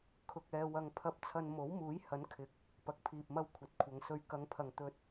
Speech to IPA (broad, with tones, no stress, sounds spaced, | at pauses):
kʰ ʊ˧ k̚ ɛː˧ w ɐ˧ ŋ pʰ ɐ˧ p̚ t͡sʰ ɐ˧ n m o˨˥ w m uː˨˥ j h ɐ˨˥ n kʰ ɪ˨˥ k̚ | p ɐ˨ k̚ pʰ iː˨ p̚ m ɐ˧ w kʷʰ ɐ˨˥ t̚ kʷʰ ɐ˨˧ ŋ s ɵ˧ ɥ k ɐ˨˧ ŋ pʰ ɐ˨ ŋ t̪ ɵ˨ t̚